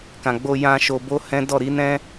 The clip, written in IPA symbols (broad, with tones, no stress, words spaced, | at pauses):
kã˨ɡ͡bo˧jã˧ ʃo˧bo˦hɛ̃˦ dɔ˦˨ɾi˨˦nɛ̃˦